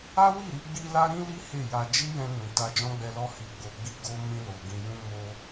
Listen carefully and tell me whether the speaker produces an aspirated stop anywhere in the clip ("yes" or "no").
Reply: no